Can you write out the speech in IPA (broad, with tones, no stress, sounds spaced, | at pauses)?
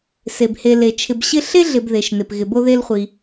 s e˩ b h e˨ l e˩ t͡ʃʰ ɪ˨ b ɕ ɪ˦ ɬ e˥ ɮ ɪ˨ b ð e˩ ʃ n ɪ˩ p ɣ ɪ˨ b o˦ ð e˦ l χʷ i˨